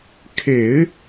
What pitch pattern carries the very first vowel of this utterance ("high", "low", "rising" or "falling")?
low